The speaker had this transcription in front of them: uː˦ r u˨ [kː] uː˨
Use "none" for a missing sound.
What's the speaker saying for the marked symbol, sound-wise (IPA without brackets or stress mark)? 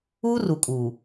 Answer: kʼ